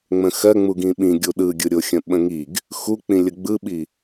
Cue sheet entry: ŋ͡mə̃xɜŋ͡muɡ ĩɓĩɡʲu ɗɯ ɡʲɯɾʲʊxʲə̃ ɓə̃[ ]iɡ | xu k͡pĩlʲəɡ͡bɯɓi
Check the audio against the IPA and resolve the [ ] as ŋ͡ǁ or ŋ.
ŋ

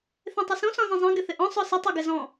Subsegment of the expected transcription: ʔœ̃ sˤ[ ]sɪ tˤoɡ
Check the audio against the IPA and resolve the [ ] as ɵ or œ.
œ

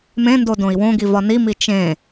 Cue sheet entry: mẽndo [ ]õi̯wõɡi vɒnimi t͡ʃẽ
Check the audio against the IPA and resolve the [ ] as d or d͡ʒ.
d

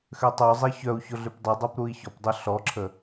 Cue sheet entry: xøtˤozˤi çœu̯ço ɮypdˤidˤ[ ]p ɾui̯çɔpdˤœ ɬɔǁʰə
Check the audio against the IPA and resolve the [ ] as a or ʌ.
a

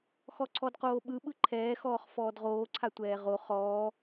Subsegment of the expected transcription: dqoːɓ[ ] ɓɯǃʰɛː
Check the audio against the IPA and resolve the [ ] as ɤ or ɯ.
ɯ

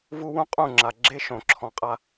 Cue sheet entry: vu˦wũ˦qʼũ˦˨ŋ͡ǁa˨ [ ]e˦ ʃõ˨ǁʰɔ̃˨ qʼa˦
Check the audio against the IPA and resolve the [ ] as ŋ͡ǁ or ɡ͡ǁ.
ɡ͡ǁ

